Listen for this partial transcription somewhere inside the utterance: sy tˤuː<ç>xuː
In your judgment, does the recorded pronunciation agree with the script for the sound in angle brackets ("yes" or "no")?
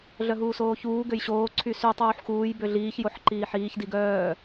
no